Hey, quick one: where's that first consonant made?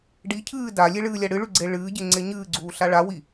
retroflex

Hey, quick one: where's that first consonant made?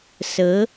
tongue tip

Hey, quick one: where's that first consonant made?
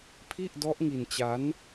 lips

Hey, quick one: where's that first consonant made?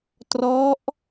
tongue tip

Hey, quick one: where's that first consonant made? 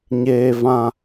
palate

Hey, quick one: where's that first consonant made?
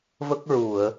lips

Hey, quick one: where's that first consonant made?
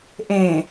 throat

